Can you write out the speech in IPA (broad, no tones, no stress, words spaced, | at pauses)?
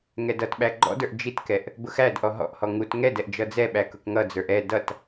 ŋɛdʌtɓæ ɡ͡ǃɔ̰də˞ʔ d͡ʒitkɛʔ | bʊxædʔɔ ɦɔ̰ʔhɔ ŋut ŋɛdɛʔ d͡ʒʌd͡zɛɓæ kʊkŋʌd͡zə˞ʔ ɛ dʌt